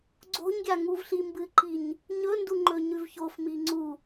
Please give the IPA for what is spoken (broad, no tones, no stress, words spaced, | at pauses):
ɡ͡ǀo̤ɲɡʲa ŋuvɬimbɨǃiɲ | ɲɵnduŋ͡ǃɵɲʉv çofmi ŋ͡ǀu